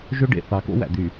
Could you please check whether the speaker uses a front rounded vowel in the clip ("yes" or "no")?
yes